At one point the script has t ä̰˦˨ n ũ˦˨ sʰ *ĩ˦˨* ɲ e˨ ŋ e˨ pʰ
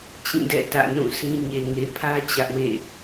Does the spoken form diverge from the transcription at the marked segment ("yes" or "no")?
yes